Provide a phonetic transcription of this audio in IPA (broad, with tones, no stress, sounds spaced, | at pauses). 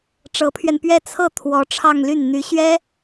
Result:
ʈ͡ʂ ɤ˧˥ pʰ ɥ ɛ˧ n p ɥ ɛ˥ t͡sʰ ɤ˥˩ t̪ʰ w ɔ˧˥ ʈ͡ʂʰ ɑ˥˧ ŋ l y˥˩ n n̪ y˧˥ ɕ ɥ ɛ˥